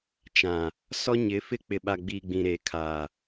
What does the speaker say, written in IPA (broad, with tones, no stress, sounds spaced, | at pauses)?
t͡ʃ ã˨ | s ɔ˦ ɲ ɪ˨˦ f ɪ˦ k͡p ɪ˨ ɓ a˨ ɡ͡b i˨ ɡ͡b ĩ˨ ɾ e˨ kʰ aː˨